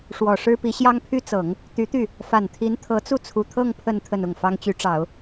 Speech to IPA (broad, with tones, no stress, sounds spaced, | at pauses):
ʂ w ɔ˨˩ ʂ ɻ̩˥ p i˧˥ ɕ j ɑ˥ ŋ pʰ y˥ t͡s ɤ˨˩˦ ŋ | t̪ y˧˥ t̪ y˥˩ | f a˨˩ n t̪ʰ i˧˥ n t̪ʰ ɤ˧˥ t͡s u˥˩ t͡sʰ u˨˩ t̪ʰ ɤ˥˧ ŋ pʰ ə˥˧ n t̪ʰ ə˥˧ n ʊ˥˩ ŋ f ɑ˥ ŋ t͡ɕ y˧˥ ʈ͡ʂ ɑ˨˩˦ ʊ̯